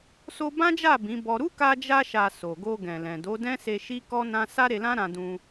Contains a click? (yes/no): no